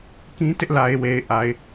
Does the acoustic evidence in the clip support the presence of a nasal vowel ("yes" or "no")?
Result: yes